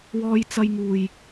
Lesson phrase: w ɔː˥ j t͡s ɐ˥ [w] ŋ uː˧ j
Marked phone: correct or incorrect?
incorrect: j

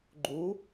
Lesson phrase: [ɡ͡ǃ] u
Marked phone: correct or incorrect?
correct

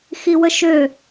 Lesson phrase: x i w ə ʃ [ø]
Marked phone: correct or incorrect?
correct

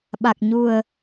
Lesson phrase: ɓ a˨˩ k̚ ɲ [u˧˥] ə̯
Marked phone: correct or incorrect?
incorrect: u˨˩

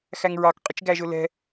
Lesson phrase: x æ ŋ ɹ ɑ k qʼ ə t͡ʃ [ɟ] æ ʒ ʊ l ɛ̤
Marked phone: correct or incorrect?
incorrect: ɡ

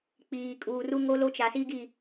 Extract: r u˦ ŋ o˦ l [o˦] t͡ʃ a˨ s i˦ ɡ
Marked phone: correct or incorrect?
correct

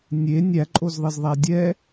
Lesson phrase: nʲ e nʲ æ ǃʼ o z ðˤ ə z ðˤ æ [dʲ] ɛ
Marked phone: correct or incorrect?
correct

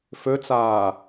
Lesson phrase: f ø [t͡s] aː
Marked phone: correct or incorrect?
correct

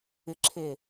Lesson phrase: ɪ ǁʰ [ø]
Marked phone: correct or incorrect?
incorrect: e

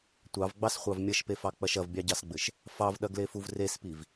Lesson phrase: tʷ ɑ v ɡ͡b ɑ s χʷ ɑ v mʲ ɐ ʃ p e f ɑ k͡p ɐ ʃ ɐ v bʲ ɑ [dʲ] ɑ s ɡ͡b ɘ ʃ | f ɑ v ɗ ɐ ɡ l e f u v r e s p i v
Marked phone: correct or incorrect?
incorrect: ɟ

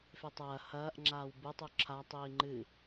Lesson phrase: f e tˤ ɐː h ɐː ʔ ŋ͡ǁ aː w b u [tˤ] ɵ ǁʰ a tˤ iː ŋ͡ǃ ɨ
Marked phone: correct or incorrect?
correct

